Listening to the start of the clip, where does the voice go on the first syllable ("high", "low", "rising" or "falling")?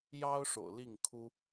high